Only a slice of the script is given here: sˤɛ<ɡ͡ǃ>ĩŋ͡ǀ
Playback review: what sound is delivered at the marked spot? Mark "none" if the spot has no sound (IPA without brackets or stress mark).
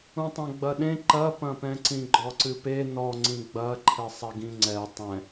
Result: ɡ